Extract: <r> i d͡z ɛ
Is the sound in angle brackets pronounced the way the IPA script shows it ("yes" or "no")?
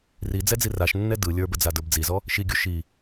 yes